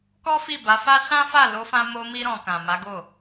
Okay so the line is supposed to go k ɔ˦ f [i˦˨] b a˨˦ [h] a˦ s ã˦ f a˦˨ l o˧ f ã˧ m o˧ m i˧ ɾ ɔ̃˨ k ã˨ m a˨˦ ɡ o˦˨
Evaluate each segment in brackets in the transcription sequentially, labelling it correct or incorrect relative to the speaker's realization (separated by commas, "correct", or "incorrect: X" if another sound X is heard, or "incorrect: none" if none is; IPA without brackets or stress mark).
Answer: correct, incorrect: f